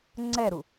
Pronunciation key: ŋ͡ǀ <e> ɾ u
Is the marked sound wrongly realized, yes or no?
yes